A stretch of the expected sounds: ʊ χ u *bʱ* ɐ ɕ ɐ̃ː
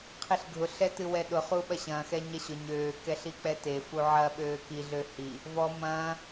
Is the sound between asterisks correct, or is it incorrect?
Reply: incorrect